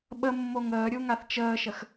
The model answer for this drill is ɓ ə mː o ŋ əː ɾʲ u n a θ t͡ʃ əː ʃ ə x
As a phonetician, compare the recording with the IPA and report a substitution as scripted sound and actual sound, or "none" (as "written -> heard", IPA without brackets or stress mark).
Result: n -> ŋ